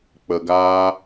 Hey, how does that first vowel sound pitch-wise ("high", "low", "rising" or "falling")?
low